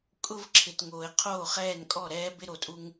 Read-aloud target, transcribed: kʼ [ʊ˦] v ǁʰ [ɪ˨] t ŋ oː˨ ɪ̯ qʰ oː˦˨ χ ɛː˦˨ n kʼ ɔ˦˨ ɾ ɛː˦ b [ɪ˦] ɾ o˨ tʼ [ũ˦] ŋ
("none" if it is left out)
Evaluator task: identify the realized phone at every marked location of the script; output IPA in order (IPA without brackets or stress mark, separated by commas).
ʊ˦, ɪ˨, ɪ˦, u˦